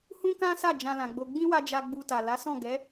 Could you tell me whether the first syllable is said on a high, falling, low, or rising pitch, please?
high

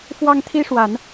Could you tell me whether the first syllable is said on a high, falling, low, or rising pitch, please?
high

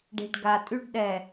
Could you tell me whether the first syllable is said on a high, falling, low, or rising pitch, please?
low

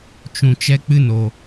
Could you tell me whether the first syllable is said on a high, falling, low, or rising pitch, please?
low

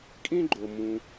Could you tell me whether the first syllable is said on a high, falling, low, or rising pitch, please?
high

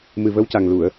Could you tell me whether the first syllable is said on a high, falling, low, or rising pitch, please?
low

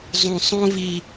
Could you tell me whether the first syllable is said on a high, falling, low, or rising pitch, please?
low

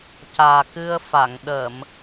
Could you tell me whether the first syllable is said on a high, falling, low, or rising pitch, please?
low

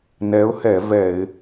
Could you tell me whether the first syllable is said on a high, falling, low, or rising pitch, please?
rising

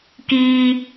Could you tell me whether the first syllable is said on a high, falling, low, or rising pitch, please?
high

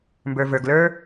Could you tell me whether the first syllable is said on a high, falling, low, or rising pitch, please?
low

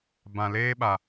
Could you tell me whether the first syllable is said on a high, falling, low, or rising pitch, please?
low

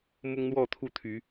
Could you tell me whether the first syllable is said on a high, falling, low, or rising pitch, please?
high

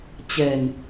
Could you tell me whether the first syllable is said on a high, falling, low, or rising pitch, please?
low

